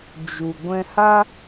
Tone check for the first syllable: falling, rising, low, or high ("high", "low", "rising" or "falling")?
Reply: low